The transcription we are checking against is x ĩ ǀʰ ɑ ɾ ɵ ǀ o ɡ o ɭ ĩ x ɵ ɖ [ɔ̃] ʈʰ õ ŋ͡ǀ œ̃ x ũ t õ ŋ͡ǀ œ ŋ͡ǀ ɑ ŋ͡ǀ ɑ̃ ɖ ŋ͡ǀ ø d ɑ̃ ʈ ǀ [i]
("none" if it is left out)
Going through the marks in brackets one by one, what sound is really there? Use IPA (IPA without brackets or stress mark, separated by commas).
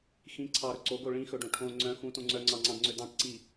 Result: õ, i